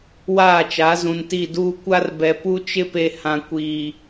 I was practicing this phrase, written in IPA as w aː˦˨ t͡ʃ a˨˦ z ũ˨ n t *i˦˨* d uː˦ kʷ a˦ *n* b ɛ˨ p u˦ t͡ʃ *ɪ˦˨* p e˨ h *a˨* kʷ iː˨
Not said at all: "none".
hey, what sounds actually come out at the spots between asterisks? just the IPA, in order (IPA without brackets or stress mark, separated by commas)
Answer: i˦˨, r, ɪ˦, ã˨